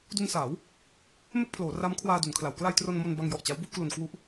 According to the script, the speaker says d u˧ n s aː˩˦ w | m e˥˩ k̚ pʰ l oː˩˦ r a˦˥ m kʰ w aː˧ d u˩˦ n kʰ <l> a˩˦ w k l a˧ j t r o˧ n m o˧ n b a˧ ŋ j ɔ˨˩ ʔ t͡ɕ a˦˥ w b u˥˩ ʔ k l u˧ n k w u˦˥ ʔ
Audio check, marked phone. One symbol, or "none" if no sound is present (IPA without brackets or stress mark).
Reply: l